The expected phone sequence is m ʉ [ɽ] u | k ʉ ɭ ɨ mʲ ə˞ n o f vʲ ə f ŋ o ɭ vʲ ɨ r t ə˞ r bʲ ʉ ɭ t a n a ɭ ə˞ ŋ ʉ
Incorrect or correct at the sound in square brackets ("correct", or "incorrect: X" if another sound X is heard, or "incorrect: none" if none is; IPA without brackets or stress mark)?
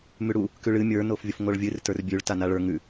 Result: correct